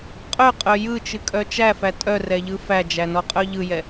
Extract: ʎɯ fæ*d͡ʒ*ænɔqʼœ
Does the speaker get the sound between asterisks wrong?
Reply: no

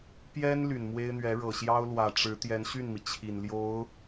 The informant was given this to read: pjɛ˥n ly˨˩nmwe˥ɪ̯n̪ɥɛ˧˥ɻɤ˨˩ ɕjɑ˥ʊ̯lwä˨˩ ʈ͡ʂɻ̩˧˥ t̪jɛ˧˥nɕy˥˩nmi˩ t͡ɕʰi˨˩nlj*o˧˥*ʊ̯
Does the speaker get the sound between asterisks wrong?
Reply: no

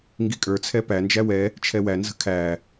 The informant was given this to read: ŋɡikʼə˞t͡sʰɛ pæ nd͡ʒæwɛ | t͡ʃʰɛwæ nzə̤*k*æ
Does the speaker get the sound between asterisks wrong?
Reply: yes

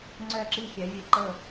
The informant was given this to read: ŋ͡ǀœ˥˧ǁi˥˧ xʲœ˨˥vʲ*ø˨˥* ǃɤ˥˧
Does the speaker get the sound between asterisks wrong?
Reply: yes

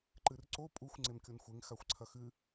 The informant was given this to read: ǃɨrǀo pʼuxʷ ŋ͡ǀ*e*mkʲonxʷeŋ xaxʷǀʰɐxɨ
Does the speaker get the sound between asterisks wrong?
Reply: no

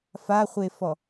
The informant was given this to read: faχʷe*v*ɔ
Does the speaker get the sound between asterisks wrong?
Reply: yes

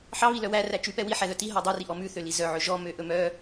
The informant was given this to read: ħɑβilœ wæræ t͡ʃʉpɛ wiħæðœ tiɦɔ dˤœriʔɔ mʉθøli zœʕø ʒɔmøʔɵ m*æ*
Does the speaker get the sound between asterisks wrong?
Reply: yes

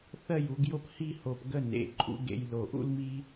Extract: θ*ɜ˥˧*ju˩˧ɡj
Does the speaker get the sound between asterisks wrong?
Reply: no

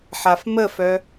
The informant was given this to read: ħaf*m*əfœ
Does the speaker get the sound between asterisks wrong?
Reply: no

